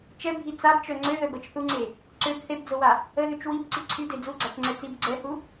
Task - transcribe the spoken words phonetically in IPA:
t͡ʃ ɛ bʱ i t͡s a b t͡ʃ œ ŋ͡ǀ ø ð œ b ə t͡ʃ θ u ŋ͡ǀ e | ǀ ø b θ e b d͡z o w a | ə ð y t͡ʃ w i b ǀ i ǀʰ y d e d͡z u ɡ͡ǀ a t͡ʃ ŋ͡ǀ ɛ t͡s i b ɡ͡ǀ ɛ h u

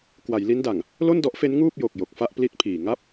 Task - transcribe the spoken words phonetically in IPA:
k w a˩˦ j l i˦˥ n d a˨˩ ŋ | l o˥˩ n d ɔ˦˥ ʔ f e˦˥ n ŋ uː˥˩ p̚ j o˨˩ k̚ j o˨˩ k̚ f a˥˩ ʔ p l i˦˥ t̚ pʰ iː˨˩ ŋ a˥˩ p̚

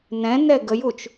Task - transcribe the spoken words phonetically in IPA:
n ɛ̃ n ɛ ɡ ə j u t͡ʃ

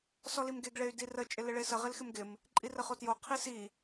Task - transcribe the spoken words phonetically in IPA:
s ɔ l i m ɡ e ɡ ɭ e y̯ d i r ə t͡ʃʼ ɪ l ɪ ɭ e s ə ʁ ɪ l x ɪ m ɡ ɪ m | ǃʼ i r ə χ o t j o qʰ i s i

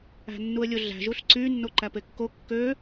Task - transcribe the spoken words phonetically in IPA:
æ̤ nː u ə̯ lʲ o ɮ æ̤ ʒ u ɬ ǀ y nː o ǃ æ p e kː o kː ø

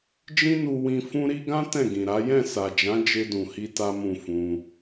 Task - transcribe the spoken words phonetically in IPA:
d͡ʒ ĩ˦ n u˧ w ĩ˧ f ũ˦ ɾ i˦ ɡ ã˦ t ɛ̃˦˨ ɡ ĩ˨ ɾ a˨˦ j ɛ̃˦˨ s a˨ d͡ʒ ã˨˦ d͡ʒ e˧ d ũ˨ h i˧ t a˦ m ũ˦˨ f ũ˧

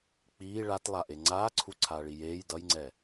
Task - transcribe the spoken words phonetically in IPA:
k͡p iː ɭ a t lˠ a ʔ e ŋ͡ǀ aː ǀʰ u ǀʰ aː ɭ i j eː j d ʌ j ŋ͡ǀ ɛ

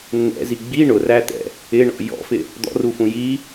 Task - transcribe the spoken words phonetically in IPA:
nː ɛ̰ z i ɡ͡b i ɳ ʊ r æ t̪ ɛ̰ | ɪ ɳ ɔ̰ j ɔ̰ f ɪ | d̪ ɔ̰ r u f ũ j i

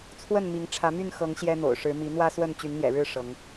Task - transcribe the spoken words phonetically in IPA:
t͡sʰ w ə˥˨ n m i˨˦ ŋ ʈ͡ʂʰ ä˨˦ m y˥˨ n x ɤ˨˦ ŋ ɕ j ɛ˦ n̪ o̰˨˩ ʊ̯ ʂ ɻ̩˨˦ m i˨˦ n̪ w ä˦ s w ə˥˨ n t͡ɕ y˨˦ n n̪ j ɛ̰˨˩ ɻ ɻ̩˥˨ ʂ ɤ˨˦ ŋ

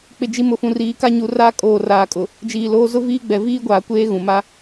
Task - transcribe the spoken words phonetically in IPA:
k͡p ɪ˨ d͡ʒ i˨ m ʊ˨ f ũ˨ r iː˨˦ k a˦˨ ɲ u˨ r aː˦ kʼ oː˨ r aː˨ kʼ ʊ˨ | d͡ʒ iː˨ l oː˦ z ʊ˦ v iː˦ ɡ͡b ɛ˨ v iː˦ ɡʷ aː˨ kʷ eː˦ ɣ ũ˨ m a˦

